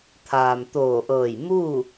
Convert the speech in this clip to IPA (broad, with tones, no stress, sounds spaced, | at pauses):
t̪ʰ aː˩ m t̪ oː˧˩ ʔ ɤː˧˩ j m uː˥˨